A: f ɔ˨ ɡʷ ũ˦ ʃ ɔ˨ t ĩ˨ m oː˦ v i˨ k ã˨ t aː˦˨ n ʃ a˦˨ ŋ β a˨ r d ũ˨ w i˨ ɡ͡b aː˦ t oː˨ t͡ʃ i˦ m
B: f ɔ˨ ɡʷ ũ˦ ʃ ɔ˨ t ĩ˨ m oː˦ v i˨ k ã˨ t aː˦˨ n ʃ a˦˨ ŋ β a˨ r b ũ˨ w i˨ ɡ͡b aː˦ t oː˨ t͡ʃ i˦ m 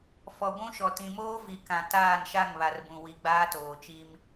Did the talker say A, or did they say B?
B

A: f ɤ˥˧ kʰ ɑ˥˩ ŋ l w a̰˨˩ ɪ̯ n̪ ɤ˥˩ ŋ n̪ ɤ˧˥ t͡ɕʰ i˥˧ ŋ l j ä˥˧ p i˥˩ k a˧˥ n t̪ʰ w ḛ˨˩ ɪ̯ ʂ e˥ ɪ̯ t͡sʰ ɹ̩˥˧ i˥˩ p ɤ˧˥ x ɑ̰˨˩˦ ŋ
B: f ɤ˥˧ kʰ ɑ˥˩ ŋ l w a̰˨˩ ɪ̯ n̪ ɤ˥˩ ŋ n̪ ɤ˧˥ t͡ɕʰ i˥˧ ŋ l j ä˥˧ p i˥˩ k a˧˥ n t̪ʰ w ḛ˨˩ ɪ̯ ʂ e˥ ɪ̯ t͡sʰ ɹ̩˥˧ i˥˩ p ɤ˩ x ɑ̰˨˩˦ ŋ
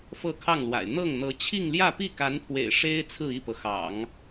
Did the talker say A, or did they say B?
B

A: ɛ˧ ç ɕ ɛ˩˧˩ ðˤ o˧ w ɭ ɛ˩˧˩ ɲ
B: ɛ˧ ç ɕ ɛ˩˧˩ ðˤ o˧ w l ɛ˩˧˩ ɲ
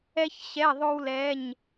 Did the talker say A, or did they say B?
B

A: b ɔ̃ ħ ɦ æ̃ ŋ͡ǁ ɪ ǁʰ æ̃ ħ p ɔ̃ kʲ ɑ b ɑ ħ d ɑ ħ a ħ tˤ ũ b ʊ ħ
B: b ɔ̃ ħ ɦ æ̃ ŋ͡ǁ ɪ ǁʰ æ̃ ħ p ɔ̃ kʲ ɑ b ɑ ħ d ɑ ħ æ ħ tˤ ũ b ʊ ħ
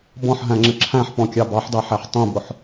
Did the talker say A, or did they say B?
B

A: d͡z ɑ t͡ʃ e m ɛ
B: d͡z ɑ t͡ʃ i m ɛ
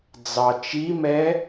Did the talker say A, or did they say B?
B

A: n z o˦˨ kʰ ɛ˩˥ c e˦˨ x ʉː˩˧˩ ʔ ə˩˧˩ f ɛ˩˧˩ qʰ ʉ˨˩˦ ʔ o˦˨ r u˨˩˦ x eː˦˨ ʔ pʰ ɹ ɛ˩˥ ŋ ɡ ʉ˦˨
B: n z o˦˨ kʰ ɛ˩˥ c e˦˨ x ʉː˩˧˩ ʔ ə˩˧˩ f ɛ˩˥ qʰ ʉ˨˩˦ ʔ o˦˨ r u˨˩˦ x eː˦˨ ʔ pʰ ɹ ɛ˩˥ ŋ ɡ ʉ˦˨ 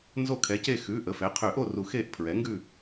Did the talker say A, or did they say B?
B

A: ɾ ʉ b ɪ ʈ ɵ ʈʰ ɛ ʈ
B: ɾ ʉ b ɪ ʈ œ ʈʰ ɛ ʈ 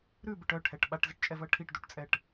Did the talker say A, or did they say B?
B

